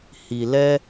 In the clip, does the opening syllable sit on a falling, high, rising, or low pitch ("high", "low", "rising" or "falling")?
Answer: low